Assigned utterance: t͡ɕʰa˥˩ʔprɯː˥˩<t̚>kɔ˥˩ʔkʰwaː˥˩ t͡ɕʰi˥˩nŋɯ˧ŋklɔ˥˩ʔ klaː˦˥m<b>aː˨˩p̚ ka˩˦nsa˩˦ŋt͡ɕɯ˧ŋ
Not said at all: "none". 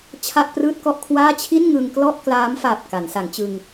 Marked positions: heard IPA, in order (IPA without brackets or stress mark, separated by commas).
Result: t̚, f